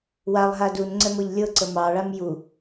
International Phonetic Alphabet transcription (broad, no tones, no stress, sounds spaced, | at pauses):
w a lˠ ɦ a d u n ŋ͡ǀ ɛ m ɤ ʎ lʲ ɤ ǀ ə m ɑ ɭ a m j u